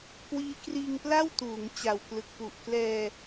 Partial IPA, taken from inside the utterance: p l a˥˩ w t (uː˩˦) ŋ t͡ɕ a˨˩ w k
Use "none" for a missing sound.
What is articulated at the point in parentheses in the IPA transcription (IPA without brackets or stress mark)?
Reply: uː˩˦